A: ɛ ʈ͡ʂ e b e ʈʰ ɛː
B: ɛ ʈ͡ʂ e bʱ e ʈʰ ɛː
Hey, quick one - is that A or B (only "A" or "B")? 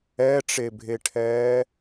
B